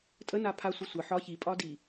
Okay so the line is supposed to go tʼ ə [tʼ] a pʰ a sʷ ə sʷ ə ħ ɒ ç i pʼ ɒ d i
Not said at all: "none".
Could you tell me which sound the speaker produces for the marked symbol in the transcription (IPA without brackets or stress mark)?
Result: n